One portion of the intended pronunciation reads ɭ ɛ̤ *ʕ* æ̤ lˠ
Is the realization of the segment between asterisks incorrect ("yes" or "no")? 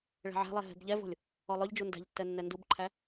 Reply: no